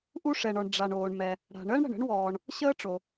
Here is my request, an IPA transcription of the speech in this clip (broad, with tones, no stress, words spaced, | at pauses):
ʔu˥ʂɛ˩ɳɔ˩ɳ ɖ͡ʐa˩ɳoː˩ɳmɛ˩ | ɽa̤˩ɳəː˥ɳ ɽə̤˩ɳə̤˥ɳwɔː˩ɳ | ɕəː˥ʈ͡ʂo˩